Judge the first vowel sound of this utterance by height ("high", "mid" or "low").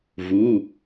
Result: high